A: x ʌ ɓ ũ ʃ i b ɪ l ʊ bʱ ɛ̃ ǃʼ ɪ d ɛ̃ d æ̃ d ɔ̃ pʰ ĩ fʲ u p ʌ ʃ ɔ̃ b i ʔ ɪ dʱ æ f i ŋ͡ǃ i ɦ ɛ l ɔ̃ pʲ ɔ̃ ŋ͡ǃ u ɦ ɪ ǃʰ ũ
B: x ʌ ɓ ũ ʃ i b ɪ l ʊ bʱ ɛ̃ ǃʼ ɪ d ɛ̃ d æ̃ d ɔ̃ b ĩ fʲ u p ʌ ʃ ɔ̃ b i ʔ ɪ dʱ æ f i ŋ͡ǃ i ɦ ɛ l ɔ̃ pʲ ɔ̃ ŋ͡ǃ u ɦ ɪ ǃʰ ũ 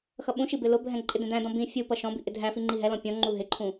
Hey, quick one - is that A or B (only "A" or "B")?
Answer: B